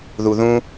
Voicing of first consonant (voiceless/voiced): voiced